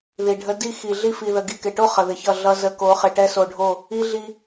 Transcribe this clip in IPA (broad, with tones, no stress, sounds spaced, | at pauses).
ð i˨ ɖʱ ə˦ d i˦ x i˨ ɮ i˦ f i˨ ð ə˨ ɡ i˨ k ɪ˨ ʈ o˦ χ ə˨ ð ɪ˨ ç ʌ˦˨ ɮ ʌ˦ z ə˨˦ k o˨˦ χ ɪ˨ ʈ ɛ˦ s o˨ ɖʱ o˦˨ | i˦ ɮ i˦